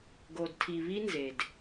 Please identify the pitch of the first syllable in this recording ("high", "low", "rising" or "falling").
low